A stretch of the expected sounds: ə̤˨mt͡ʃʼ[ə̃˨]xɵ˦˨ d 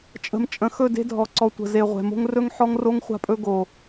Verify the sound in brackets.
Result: correct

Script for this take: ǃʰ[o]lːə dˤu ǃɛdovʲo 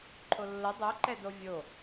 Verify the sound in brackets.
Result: correct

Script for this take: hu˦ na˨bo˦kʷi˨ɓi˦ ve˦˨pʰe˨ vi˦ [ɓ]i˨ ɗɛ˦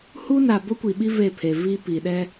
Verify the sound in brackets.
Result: incorrect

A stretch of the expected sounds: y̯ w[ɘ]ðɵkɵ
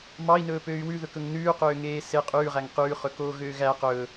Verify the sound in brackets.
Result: incorrect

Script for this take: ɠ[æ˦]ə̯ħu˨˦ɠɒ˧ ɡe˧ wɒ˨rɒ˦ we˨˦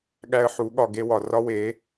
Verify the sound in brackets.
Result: correct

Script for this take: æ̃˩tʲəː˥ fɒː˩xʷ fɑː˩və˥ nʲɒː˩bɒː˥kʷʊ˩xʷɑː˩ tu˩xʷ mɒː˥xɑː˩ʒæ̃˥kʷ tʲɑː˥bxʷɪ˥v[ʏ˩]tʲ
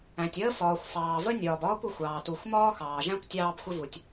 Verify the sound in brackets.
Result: incorrect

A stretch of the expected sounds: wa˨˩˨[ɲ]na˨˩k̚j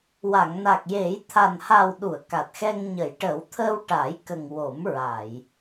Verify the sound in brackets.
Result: incorrect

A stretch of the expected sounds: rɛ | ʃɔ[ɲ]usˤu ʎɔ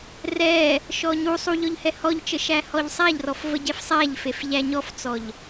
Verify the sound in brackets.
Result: correct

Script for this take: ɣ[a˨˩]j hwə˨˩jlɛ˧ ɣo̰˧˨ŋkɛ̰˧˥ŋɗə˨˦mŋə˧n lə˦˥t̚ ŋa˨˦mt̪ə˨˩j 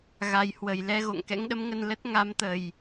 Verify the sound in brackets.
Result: correct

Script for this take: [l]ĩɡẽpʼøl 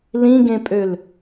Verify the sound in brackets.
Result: correct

